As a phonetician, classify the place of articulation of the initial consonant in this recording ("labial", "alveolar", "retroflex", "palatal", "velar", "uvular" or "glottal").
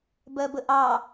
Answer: labial